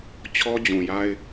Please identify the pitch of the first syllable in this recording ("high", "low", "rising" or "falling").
high